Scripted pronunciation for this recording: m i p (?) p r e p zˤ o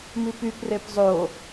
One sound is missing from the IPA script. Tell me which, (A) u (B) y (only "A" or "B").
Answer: B